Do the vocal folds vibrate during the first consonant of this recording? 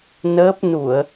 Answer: yes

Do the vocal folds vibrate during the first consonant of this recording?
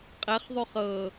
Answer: no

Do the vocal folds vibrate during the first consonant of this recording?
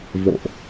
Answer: yes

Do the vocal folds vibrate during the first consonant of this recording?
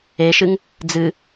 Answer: no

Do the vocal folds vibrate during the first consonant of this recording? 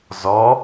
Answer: yes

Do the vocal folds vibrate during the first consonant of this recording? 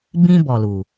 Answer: yes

